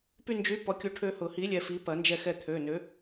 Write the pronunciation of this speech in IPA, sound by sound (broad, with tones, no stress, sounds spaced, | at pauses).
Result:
p y˧ n d͡ʒ y˨˥ p ɔ˨˥ kʲ u˧ ʈʰ ø˧ h ʊ˨˩˦ h i˨˥ lʲ ɛ˧ f i˨˥ p ɐ˨˩˦ n d͡ʒ ɛ˧ x ɛ˧ t̪ʰ ø˩˧˩ n ø˨˥